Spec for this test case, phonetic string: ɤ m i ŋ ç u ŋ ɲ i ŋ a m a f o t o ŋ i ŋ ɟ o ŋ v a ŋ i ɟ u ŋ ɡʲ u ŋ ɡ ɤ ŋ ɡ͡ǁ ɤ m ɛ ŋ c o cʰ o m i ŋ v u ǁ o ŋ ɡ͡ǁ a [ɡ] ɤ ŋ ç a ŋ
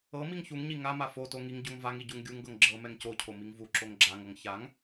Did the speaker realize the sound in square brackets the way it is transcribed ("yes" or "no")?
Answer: no